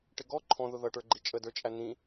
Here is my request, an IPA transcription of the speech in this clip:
ʈ ɪ ɡ ɔ ǃʰ ɔ̃ ð ʊ ð ʌ ʈ ə˞ ɡ͡ǃ i t͡ʃʼ ə d ə˞ t͡ʃʼ æ n̪ ĩ

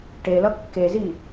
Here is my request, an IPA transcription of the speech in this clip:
ʈ e l ʌ kː e z i

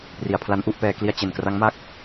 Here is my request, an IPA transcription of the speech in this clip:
p r i˩˦ a̯ pʰ l a˦˥ n ʔ u˥˩ ʔ p ɛː˧ k l i˥˩ a̯ t͡ɕ e˨˩ n k r a˦˥ ŋ m a˥˩ k̚

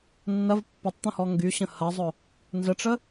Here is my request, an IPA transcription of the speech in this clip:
nː ɐ v pː ʊ tˤ t̪ ə̃ h ɔ ŋ ɡ y ɕ ə̃ h ɐ zˤ ʊ | n z ə ʈ͡ʂ ə

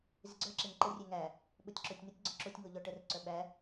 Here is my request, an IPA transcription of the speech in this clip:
z ɪ ɡ͡ǀ œ ǁ e ŋ ǃ ə rʲ e ŋ æ | ɓ o tʲ ǁ o tʲ n ə tʲ ɡ͡ǀ ɔ ǁ o tʲ ŋ o ʎ ɔ ʈ ə r ǀ œ ɓ æ

